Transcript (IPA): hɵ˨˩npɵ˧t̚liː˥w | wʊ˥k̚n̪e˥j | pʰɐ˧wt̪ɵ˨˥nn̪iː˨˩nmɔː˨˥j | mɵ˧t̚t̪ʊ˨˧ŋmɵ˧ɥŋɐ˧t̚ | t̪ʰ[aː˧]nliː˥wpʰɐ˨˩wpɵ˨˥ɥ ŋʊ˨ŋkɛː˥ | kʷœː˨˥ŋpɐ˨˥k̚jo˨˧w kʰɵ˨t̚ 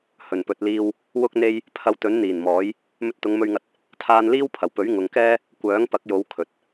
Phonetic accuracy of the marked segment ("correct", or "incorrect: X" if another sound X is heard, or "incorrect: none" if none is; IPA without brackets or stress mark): correct